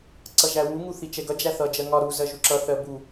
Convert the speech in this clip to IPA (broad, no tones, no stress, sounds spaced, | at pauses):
ǀ ʌ ʒ æ w u ŋ u θ i t͡ʃ ɛ ɡ ʌ d͡ʒ æ θ ʌ d͡ʒ ɜ ŋ ɒ ɾ u z ɜ ʒ u ǁ ʌ θ ɜ b u